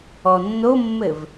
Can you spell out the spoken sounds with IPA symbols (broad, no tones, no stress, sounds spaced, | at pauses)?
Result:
ɔ nː o mː ɘ v